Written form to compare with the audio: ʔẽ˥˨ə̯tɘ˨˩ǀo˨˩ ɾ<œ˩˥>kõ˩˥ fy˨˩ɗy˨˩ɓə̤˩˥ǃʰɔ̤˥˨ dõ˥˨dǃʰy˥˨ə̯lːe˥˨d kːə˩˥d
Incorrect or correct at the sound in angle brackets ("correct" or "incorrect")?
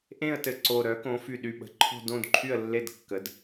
correct